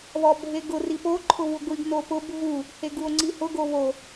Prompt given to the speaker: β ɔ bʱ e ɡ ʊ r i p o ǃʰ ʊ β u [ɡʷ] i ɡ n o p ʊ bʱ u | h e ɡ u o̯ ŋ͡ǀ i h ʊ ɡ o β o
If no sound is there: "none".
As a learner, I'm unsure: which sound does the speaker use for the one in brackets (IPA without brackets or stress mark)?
ɡʷ